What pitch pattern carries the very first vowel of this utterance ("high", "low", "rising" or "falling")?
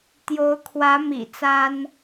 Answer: rising